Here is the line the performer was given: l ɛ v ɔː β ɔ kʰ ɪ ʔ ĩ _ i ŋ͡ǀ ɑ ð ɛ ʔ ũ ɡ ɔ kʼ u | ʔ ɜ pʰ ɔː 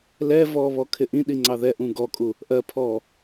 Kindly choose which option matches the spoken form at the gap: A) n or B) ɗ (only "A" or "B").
B